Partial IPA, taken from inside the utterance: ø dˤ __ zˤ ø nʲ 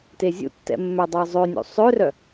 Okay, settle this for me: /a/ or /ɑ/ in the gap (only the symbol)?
ɑ